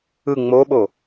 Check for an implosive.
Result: present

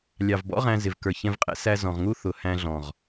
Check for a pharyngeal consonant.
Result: absent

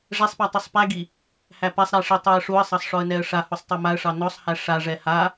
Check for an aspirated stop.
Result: absent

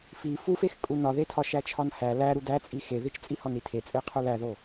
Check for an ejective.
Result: present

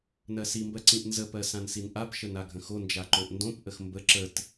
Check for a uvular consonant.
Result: absent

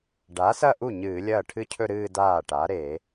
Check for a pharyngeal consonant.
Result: absent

